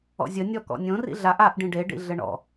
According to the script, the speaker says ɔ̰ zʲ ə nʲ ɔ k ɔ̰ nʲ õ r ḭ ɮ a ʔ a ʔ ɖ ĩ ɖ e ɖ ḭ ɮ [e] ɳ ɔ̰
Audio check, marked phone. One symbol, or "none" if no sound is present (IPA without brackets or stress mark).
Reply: ɘ